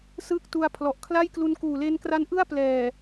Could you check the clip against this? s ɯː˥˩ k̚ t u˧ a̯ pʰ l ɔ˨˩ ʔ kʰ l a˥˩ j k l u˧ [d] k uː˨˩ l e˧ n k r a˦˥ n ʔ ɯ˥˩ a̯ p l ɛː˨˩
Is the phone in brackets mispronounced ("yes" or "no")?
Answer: yes